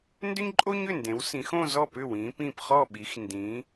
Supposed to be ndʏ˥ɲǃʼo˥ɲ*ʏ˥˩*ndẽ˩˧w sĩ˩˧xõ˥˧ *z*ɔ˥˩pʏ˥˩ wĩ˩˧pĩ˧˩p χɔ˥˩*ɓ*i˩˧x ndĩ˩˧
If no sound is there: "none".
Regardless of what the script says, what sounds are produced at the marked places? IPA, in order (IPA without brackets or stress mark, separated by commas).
ʏ˥˩, z, ɓ